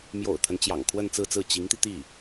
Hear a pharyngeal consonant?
no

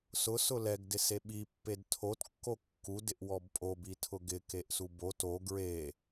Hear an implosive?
yes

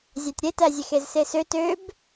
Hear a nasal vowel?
no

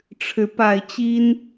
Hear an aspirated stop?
yes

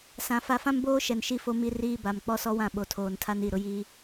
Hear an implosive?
yes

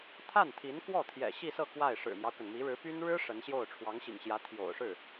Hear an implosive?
no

